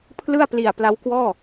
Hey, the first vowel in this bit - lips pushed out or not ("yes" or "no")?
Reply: no